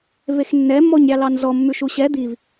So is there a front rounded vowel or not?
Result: no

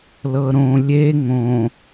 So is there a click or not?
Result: no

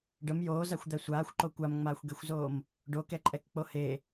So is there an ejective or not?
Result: yes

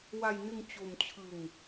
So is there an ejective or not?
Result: no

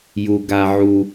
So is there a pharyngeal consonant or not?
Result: yes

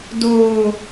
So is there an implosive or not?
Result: no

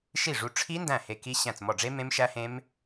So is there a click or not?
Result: no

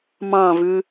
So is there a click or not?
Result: no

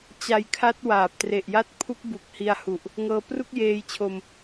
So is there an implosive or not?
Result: no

